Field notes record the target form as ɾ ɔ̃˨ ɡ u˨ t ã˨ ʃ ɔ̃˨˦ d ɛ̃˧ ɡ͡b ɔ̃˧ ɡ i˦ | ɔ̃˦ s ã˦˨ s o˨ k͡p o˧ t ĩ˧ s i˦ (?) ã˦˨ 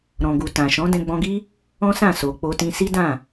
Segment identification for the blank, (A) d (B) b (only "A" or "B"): A